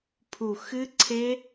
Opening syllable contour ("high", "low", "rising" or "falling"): low